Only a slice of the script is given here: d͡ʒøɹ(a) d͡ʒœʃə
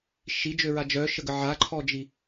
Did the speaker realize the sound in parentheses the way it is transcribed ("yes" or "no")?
yes